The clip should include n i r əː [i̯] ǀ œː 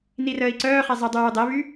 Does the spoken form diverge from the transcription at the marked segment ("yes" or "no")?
no